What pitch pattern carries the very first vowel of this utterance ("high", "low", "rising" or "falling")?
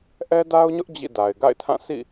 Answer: high